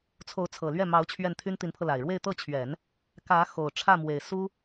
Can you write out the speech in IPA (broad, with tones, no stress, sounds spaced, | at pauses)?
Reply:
t͡sʰ o˧˥ ʊ̯ t͡sʰ ɤ˨˩ l ɥ ɛ˥˩ m ɑ˧˥ ʊ̯ t͡ɕʰ ɥ ɛ˥˩ n t̪ʰ y˥ n t̪ i˧˥ n pʰ ɤ˧ l a˨˩ ɪ̯ ɻ w e˥˧ ɪ̯ t̪ ɤ˥˩ t͡ɕʰ ɥ ɛ˨˩˦ n | k ä˧˥ x o˨˩ ʊ̯ ʈ͡ʂʰ ä˥˩ m w e˨˩ ɪ̯ s u˥